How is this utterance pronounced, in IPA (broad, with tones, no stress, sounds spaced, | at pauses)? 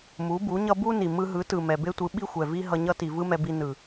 m u˨˦ b u˨˦ ɲ ʌ˦ b u˦ n i˨ m ɯ˧ ɦ ɯ˨˦ t ɯ˨ m ɛ˨ b e˦ tʷ ɯ˨˦ ɓ i˦ xʷ ɛ˨ v i˦ ɦ ʌ˧ ɲ ʌ˦ t i˨ v ɯ˦ m ɛ˧ b i˧ n ɯ˨